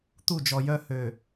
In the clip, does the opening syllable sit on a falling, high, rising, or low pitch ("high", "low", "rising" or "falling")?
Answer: falling